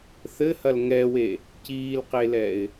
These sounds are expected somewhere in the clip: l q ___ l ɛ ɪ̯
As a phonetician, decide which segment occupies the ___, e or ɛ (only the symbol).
e